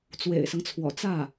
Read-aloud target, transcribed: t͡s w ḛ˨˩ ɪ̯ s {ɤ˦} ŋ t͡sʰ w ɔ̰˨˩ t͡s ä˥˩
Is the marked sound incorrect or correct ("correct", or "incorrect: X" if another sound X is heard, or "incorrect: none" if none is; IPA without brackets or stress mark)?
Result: correct